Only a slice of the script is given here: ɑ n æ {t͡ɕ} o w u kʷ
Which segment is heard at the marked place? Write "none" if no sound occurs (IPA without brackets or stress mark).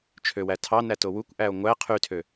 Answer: t